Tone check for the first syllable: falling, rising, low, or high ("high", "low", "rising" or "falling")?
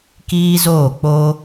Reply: high